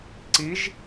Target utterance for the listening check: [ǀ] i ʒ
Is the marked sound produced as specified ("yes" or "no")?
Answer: yes